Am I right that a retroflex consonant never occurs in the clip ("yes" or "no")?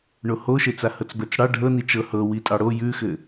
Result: no